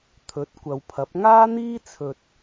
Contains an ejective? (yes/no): no